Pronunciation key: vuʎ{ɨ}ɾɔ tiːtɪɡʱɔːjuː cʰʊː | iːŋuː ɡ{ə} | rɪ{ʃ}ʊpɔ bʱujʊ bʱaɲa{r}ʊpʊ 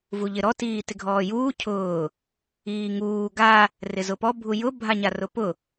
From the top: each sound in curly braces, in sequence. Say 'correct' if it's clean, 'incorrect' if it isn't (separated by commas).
incorrect, incorrect, incorrect, correct